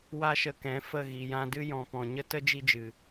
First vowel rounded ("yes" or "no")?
no